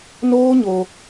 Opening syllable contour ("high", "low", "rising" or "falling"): high